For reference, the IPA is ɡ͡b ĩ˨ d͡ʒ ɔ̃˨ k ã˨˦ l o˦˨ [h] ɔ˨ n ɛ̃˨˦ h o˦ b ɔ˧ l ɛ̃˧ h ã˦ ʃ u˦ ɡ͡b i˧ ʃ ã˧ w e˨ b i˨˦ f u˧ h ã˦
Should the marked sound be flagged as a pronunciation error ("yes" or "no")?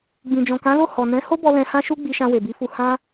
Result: no